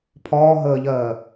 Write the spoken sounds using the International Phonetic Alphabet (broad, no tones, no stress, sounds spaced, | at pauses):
pʰ ɒː ɦ əː ʎ ɜː